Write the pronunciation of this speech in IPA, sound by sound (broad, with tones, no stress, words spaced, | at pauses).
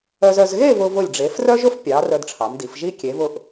œ˧zœ˧z ɣe˥˧ vʊ˧vʊ˧˩lʲɖ͡ʐe˩˧f rœ˥ʒʊ˥fpʲɑ˩˧ rœ˧dʈ͡ʂʰɑ˩˧mdi˩˧fʒi˥ kʲe˩˧vʊ˧˩ʔ